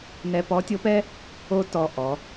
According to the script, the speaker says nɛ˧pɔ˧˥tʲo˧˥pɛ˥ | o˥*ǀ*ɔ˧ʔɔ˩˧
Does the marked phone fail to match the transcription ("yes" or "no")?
yes